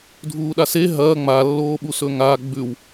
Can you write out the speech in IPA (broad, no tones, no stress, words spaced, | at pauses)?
dʱuːɗase ɦɐː ŋ͡malːoːɓu sɵŋa ɡ͡bʉw